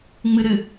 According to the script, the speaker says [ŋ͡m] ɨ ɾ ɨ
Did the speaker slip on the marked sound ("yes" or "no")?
no